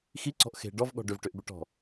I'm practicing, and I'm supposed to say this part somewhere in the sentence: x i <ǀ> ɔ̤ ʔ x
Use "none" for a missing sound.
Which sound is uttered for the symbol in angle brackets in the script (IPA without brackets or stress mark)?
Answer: ǀ